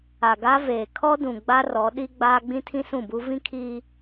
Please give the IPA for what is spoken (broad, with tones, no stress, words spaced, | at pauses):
a˨ɡa˦veː˨ kʰɔ˦ dũ˨ ɡ͡ba˦rɔ˨˦ ɗi˦ɡ͡baː˦ ɡ͡bĩ˦tʰĩ˦ sũ˦˨bu˦ vĩ˦kʰiː˦